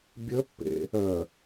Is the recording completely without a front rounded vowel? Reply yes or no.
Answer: no